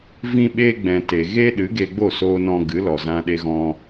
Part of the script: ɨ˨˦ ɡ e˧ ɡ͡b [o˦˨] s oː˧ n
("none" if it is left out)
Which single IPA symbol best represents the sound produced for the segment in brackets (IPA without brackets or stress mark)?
o˦˨